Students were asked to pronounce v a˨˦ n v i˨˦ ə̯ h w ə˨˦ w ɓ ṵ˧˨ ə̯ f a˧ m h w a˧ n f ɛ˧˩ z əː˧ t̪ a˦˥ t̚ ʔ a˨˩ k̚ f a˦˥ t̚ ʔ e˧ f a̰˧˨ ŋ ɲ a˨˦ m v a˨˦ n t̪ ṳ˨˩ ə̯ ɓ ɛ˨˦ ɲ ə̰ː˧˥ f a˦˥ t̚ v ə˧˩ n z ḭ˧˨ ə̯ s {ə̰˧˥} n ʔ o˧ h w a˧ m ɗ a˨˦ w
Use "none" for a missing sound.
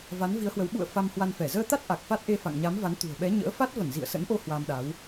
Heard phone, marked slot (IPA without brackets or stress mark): ə̰˧˥